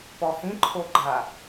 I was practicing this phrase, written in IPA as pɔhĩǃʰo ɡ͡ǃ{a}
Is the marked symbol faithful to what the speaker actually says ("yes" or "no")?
yes